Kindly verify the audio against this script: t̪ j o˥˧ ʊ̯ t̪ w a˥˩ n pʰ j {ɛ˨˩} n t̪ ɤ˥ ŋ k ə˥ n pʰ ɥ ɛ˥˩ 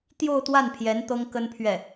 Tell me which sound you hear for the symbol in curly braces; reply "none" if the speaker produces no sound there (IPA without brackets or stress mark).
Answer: ɛ˧˥